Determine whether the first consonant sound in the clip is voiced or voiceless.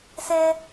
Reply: voiceless